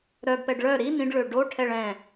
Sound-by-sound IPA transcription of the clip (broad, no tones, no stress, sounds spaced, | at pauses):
ɾ œ ɡ p ɛ ɖ ɭ œ ɾ i n ĩ ɖ ɭ ø ɖ o ʈʰ ɛ ɭ ɛ̃